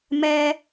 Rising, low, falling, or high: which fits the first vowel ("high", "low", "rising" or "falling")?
high